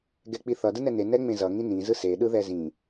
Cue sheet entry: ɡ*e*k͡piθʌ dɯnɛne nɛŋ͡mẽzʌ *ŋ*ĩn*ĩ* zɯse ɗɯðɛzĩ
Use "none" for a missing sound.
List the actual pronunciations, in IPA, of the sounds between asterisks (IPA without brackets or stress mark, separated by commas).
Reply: ɛ, ŋ, ĩ